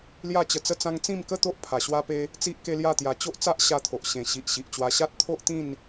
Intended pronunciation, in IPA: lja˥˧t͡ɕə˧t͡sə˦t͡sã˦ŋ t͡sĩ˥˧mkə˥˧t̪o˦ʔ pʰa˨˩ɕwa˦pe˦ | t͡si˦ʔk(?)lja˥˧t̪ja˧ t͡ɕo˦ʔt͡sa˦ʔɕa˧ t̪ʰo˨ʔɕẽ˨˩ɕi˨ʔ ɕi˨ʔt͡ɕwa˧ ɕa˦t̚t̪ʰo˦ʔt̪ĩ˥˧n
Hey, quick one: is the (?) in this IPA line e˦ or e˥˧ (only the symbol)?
e˦